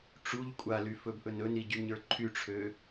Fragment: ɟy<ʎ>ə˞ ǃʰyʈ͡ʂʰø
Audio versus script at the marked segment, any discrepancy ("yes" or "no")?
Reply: yes